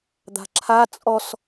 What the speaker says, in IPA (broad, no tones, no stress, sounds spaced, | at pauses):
d̪ a̤ ǁʰ a t͡sʼ ɔ s